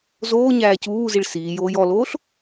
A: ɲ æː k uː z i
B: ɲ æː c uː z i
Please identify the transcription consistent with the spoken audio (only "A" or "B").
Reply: B